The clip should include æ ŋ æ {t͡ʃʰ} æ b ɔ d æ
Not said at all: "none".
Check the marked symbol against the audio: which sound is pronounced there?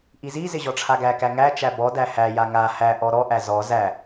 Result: t͡ʃ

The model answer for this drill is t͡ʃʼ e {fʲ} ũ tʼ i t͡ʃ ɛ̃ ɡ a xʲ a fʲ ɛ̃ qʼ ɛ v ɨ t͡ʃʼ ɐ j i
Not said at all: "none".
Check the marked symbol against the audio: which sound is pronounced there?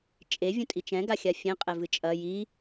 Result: vʲ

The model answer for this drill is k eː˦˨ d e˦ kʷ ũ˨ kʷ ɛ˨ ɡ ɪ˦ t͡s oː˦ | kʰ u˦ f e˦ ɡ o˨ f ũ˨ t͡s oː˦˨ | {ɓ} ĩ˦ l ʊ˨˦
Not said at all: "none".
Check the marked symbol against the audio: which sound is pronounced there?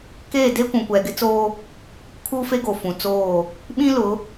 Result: ɓ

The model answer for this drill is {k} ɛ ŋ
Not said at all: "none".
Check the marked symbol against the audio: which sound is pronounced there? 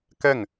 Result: k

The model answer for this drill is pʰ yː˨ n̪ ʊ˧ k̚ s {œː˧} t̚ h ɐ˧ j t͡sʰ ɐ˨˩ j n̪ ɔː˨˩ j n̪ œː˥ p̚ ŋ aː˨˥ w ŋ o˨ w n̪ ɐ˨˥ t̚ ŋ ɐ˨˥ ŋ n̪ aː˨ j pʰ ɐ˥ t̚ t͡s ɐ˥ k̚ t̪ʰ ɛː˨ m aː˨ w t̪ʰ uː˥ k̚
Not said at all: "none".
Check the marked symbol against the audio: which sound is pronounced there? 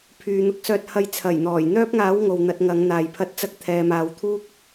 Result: œː˧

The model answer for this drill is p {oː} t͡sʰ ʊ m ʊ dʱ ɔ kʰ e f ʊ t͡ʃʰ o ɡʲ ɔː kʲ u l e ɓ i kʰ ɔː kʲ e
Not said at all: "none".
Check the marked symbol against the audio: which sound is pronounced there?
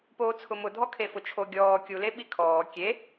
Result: oː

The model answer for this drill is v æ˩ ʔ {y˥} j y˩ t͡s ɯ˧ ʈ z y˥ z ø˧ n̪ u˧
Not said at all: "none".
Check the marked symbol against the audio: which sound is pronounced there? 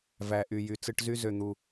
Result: y˩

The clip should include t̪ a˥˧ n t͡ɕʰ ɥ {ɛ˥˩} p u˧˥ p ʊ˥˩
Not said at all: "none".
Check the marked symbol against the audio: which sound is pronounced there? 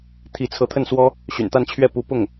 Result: ɛ˥˩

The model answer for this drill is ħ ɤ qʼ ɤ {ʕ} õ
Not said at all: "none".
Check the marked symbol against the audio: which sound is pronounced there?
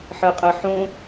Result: ħ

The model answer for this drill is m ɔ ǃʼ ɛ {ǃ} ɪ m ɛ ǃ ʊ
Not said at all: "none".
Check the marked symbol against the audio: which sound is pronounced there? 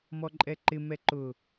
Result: ǃ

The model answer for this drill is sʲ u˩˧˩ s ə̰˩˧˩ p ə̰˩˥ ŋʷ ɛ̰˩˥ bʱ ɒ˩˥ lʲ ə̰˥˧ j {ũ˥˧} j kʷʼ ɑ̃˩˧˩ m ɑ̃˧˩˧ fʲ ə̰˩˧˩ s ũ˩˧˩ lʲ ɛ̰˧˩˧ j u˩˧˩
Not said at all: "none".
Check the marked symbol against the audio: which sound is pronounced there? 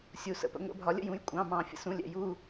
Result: ũ˩˧˩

